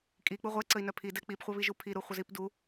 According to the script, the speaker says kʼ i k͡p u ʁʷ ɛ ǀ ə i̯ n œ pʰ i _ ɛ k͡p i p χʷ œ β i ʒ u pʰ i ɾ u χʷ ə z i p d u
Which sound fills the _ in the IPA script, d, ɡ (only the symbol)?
d